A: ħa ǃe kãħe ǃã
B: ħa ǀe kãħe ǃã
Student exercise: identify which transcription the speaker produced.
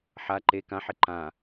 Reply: A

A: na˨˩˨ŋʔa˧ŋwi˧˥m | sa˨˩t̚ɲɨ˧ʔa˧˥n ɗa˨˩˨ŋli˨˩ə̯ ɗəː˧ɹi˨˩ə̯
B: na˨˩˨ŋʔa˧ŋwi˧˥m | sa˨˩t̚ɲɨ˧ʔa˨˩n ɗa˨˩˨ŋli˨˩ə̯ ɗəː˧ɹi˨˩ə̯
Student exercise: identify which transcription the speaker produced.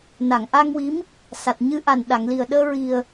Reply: B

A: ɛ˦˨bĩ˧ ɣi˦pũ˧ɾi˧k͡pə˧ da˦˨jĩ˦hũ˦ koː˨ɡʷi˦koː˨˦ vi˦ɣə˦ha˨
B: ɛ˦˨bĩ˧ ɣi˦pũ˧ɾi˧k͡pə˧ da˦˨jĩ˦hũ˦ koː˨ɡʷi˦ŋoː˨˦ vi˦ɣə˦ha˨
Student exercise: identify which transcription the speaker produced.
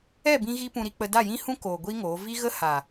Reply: B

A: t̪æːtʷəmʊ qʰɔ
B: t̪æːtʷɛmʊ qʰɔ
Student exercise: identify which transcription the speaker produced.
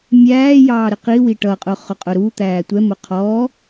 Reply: B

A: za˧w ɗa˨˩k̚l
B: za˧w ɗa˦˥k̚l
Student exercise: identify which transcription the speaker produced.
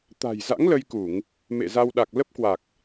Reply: A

